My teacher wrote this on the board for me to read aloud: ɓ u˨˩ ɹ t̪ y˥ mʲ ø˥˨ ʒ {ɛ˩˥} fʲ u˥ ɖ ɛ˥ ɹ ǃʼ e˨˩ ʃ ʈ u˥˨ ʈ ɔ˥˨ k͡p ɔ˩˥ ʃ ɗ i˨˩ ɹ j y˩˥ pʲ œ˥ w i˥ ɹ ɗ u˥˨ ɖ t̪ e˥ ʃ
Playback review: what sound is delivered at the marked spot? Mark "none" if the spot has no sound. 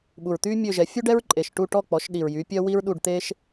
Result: ɛ˩˥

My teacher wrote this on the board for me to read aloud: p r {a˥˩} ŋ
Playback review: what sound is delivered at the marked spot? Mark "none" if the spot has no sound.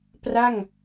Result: a˥˩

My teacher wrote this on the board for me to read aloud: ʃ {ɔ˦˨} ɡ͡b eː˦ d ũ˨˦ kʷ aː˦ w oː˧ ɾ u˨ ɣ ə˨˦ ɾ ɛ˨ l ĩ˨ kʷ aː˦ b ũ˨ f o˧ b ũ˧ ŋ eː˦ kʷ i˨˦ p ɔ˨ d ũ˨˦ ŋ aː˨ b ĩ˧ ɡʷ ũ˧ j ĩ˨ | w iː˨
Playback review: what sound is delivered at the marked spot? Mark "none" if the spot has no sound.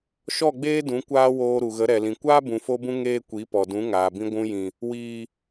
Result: ɔ˦˨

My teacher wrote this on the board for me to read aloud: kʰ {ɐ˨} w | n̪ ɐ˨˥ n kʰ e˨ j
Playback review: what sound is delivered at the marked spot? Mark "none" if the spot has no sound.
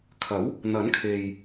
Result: ɐ˨˥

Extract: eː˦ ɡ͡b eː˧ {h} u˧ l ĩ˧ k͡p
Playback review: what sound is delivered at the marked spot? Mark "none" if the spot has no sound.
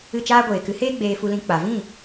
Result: f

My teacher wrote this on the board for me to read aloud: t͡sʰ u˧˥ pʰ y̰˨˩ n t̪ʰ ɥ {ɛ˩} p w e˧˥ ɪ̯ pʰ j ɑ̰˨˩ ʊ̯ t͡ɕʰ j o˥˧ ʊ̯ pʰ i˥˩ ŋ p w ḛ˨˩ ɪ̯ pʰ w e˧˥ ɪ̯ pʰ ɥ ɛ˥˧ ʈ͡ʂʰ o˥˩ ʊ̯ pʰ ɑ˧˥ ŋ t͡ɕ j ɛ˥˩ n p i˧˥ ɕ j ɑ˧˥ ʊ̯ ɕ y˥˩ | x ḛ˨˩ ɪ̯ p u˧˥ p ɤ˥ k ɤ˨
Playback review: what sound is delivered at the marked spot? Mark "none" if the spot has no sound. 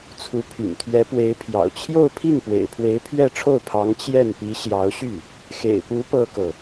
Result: ɛ˧˥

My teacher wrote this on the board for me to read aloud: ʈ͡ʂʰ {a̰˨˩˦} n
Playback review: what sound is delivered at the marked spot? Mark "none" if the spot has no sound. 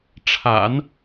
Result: a̰˨˩˦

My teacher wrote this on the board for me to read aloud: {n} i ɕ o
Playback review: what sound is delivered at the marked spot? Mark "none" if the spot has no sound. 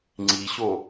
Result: ŋ͡ǀ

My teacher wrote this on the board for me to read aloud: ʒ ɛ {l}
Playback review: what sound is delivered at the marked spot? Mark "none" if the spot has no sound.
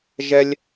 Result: lʲ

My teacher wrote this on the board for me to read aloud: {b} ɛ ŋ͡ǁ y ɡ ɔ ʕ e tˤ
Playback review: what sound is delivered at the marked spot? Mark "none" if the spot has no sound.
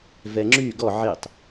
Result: v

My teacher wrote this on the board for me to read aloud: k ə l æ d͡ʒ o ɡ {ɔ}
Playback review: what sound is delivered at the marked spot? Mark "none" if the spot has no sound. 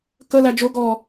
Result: ɔ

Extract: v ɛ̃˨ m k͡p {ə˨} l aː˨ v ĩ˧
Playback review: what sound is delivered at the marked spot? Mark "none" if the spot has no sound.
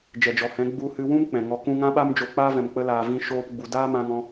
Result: ə˧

